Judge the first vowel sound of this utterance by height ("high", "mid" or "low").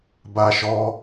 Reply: low